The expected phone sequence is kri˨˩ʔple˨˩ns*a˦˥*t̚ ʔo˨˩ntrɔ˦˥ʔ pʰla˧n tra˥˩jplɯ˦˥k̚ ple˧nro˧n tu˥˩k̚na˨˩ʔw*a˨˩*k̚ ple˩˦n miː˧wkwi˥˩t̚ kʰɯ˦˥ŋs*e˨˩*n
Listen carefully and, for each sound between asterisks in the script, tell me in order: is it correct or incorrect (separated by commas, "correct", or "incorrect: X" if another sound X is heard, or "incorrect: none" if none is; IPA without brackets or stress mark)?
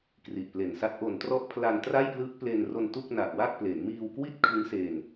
correct, incorrect: a˥˩, incorrect: e˧